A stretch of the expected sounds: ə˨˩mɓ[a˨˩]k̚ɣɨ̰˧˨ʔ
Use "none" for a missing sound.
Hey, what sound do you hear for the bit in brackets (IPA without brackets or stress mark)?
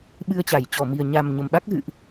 a˦˥